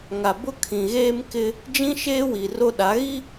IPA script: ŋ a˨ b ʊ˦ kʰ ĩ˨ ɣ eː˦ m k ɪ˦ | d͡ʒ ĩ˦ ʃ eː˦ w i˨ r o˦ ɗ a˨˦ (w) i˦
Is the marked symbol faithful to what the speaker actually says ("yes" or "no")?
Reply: no